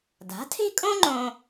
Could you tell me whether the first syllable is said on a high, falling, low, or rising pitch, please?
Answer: rising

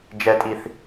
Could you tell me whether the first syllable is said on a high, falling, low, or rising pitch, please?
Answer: high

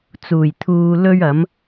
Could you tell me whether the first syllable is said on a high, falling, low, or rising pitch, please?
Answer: low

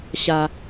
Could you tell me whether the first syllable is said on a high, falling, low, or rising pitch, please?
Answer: low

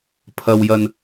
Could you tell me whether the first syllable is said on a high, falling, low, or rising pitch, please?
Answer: low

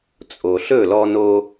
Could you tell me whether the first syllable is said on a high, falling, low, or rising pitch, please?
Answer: low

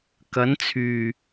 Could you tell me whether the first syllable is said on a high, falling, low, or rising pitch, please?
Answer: rising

